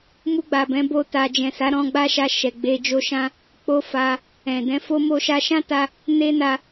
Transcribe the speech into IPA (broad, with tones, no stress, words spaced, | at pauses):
mu˧ɡ͡ba˨bɛ̃˨˦ bo˦ta˧ d͡ʒɛ̃˨sa˨˦ɾɔ̃˧ɡ͡ba˦ ʃa˧ʃɛ˨ ɡ͡be˧d͡ʒo˦ʃã˦ | k͡po˦fa˧ | ɛ̃˨dɛ̃˧fo˦ mo˧ʃa˧ʃã˦ta˧ | ne˦na˧